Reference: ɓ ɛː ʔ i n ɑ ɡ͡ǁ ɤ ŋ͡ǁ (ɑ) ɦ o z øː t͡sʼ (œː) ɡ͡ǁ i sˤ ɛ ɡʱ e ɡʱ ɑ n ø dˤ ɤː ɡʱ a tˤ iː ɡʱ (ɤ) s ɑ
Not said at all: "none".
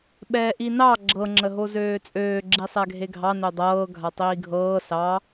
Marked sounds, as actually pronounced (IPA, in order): ə, øː, ɤː

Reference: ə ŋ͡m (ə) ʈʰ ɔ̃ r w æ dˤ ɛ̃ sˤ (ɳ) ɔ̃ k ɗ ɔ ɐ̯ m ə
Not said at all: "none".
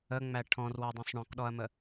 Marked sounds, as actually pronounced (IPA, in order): æ, ɳ

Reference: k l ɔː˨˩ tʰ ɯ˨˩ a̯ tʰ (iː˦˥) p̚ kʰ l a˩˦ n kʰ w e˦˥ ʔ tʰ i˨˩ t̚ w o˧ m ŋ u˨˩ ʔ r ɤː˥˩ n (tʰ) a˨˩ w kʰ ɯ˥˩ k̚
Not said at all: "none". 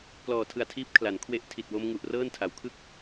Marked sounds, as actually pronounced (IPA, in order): iː˦˥, tʰ

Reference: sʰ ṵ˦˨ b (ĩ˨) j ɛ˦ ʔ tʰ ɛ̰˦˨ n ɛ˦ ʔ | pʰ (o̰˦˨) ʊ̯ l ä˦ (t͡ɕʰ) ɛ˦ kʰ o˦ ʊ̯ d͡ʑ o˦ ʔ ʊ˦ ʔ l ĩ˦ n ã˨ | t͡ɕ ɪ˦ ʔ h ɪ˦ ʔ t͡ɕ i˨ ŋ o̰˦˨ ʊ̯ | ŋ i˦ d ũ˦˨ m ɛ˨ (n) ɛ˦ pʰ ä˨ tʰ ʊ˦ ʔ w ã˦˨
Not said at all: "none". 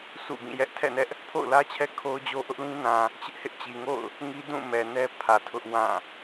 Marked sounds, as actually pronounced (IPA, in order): ĩ˦˨, o̰˦˨, t͡ɕʰ, n

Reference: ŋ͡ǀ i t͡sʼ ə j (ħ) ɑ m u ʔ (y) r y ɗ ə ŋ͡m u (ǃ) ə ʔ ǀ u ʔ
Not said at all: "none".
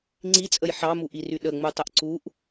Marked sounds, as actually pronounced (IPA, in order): ħ, i, tˤ

